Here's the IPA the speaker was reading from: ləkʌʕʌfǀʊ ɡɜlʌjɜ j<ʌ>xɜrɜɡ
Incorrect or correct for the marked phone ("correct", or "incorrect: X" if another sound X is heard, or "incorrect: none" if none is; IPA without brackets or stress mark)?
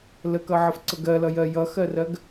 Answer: correct